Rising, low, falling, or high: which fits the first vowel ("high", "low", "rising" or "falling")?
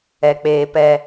low